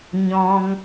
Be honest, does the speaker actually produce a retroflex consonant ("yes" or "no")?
no